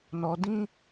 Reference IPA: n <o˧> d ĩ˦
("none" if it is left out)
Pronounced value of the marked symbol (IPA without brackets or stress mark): ɔ˧